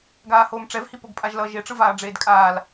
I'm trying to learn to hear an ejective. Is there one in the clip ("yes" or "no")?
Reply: yes